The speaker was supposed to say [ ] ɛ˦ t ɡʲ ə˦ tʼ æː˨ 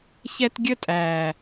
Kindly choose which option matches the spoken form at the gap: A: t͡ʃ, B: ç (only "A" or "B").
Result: B